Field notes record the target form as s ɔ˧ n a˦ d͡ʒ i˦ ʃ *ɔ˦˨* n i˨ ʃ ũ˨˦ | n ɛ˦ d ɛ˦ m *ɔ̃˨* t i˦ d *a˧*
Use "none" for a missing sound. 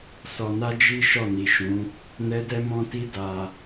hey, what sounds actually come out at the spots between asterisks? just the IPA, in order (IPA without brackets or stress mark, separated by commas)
ɔ˦˨, ɔ̃˦, a˧